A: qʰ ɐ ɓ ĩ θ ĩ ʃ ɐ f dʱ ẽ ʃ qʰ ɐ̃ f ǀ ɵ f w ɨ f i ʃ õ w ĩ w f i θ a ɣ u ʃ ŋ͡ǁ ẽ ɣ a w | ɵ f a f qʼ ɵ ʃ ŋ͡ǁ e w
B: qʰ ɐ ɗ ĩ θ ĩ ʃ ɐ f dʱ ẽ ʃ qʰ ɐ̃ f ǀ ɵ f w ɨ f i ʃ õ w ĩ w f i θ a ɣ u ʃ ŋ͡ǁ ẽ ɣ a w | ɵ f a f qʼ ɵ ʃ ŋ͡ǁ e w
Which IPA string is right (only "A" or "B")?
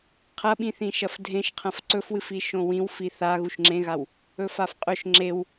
A